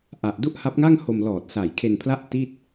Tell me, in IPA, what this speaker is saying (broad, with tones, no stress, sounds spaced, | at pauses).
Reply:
ʔ a˨˩ ʔ d u˥˩ ʔ h a˦˥ p̚ ŋ a˥˩ ŋ h o˧ m l ɔː˨˩ t̚ s a˨˩ j kʰ e˧ n pʰ l a˥˩ ʔ t i˥˩ t̚